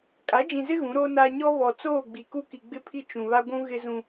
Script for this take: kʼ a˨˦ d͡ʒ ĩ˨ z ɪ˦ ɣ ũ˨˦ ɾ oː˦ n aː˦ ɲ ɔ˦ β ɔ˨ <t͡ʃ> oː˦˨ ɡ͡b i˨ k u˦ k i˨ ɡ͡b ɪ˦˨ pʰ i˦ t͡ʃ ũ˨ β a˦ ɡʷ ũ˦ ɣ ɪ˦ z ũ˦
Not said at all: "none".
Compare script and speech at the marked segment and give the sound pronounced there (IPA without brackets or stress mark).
t͡s